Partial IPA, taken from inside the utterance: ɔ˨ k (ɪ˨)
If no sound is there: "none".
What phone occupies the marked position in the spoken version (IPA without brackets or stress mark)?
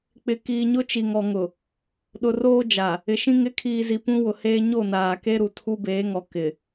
ɪ˨